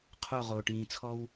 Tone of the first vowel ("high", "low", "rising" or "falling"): falling